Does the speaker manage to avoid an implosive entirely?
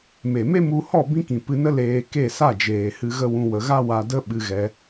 no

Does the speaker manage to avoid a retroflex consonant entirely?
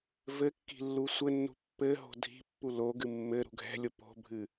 yes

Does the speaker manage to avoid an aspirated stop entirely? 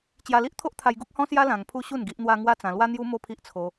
no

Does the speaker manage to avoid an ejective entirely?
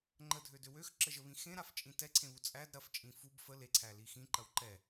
no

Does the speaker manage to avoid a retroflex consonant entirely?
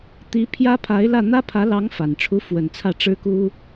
no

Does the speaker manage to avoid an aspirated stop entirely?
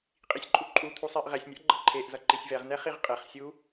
no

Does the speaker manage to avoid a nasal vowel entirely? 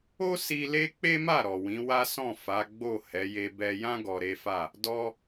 no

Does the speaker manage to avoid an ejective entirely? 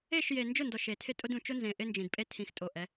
no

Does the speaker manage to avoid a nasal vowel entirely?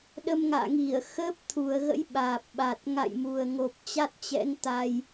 yes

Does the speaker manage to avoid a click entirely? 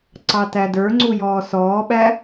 no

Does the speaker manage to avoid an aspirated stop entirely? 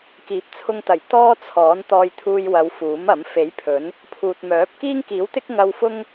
no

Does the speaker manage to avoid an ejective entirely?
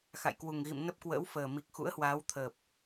yes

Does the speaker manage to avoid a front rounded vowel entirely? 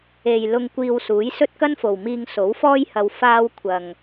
yes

